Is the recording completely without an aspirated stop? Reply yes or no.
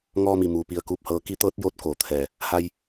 no